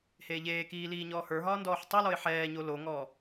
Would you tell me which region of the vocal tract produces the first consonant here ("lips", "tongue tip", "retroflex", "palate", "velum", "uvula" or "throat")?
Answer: throat